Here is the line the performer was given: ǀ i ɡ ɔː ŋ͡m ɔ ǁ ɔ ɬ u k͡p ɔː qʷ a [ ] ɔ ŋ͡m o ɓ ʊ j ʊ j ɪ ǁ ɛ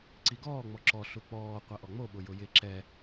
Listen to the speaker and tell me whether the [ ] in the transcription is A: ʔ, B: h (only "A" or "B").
A